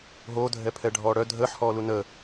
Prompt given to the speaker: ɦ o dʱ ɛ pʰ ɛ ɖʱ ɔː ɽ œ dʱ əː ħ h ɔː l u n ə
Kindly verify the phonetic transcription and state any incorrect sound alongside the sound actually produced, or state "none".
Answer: none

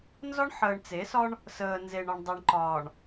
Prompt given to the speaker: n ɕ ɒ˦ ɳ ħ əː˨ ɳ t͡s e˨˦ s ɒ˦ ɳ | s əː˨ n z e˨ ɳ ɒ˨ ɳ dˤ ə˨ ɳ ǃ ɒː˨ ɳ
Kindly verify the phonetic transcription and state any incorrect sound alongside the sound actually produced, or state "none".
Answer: ɕ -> z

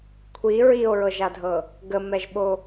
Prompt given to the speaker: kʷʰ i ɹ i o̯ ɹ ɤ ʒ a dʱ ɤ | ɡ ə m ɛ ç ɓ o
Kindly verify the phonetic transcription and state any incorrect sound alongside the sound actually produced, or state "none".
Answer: ç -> ʒ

